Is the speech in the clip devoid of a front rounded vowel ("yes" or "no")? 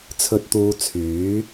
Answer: no